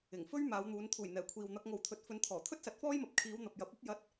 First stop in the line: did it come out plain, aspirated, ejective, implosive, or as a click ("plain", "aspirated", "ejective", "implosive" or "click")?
aspirated